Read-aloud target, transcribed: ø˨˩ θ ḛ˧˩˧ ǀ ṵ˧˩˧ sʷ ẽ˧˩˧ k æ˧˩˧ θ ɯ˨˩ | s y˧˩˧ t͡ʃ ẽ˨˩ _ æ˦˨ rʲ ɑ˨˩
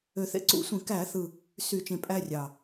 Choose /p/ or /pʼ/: pʼ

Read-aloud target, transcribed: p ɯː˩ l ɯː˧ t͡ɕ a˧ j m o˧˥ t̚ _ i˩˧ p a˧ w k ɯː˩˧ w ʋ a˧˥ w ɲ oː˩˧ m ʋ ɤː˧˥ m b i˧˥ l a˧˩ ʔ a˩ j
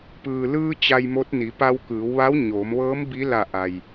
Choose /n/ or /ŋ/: n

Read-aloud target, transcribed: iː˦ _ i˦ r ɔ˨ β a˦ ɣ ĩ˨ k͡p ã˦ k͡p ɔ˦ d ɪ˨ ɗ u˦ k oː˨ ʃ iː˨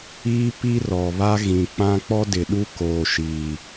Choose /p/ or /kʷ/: p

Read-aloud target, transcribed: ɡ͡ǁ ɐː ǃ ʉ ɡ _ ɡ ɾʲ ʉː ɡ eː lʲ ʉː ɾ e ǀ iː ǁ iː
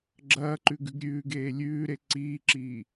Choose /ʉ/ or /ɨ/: ʉ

